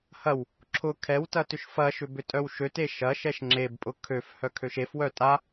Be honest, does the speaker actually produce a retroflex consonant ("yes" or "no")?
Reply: no